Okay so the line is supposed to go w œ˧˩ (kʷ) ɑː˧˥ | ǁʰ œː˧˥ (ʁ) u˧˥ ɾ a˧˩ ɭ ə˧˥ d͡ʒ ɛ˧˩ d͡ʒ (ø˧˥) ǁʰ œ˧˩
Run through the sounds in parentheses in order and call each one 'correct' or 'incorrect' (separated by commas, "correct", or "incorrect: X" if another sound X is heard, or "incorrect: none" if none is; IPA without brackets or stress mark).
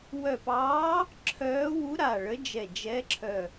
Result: incorrect: p, incorrect: w, incorrect: ɛ˧˥